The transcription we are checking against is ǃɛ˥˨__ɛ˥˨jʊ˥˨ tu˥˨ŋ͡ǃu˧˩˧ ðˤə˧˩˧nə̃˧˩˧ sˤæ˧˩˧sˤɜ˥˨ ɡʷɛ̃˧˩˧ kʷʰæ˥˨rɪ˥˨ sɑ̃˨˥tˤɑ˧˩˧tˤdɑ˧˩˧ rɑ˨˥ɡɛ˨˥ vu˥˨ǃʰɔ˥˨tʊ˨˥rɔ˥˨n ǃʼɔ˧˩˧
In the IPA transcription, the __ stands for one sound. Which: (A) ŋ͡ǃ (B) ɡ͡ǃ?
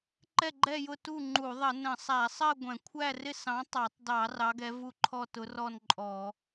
B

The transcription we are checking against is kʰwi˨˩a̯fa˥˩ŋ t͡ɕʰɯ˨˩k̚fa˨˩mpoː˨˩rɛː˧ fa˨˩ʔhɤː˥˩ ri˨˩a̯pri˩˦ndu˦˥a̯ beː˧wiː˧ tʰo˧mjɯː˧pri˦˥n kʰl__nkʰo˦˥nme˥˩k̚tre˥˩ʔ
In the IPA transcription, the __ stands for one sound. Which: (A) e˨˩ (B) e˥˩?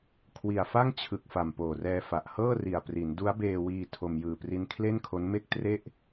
B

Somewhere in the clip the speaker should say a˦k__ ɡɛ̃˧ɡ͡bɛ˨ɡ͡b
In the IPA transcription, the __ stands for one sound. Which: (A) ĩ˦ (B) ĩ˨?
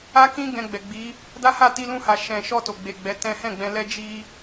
A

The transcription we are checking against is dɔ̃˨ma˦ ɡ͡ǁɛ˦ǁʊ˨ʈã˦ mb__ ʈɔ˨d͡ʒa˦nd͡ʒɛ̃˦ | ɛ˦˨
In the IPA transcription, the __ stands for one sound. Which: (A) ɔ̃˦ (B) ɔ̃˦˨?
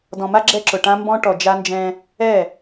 A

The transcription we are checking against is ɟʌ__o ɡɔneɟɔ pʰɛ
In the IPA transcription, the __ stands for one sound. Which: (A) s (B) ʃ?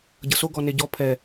A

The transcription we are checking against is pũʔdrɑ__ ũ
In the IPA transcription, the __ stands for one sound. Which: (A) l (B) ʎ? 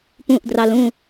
A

